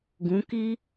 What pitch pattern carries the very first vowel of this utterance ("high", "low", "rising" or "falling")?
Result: rising